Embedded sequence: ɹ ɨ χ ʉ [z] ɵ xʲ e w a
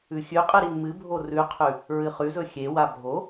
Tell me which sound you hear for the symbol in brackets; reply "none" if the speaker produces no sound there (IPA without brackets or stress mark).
z